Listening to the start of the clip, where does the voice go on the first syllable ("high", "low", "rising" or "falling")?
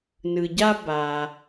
low